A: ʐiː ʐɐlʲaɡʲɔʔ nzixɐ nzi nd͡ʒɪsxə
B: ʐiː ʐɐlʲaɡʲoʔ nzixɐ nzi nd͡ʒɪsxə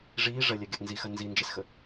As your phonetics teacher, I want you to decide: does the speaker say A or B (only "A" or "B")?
A